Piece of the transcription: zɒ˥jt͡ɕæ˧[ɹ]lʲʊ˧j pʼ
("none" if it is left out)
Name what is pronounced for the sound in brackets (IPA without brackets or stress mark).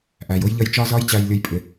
j